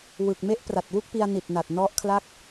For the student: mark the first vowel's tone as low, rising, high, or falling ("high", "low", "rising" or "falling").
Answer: low